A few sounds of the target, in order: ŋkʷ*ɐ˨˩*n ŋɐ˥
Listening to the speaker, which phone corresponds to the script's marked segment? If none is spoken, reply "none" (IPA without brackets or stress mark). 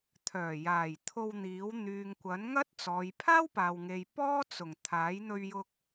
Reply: ɐ˨˥